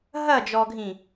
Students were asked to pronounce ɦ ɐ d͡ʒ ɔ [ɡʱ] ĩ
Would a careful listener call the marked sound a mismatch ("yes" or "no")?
no